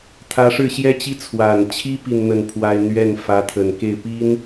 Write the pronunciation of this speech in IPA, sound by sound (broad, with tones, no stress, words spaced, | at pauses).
t̪ʰä˧˥ʂɻ̩˥˩ɕjɛ˥t͡ɕi˥ t͡sʰwa˨˩nt͡ɕʰi˥ pi˥˧nn̪ə˥˩npʰwa˥ɪ̯ n̪ɥɛ˥˩n fä˧˥t̪ʰə˨˩nke˥˩ɪ̯pi˥n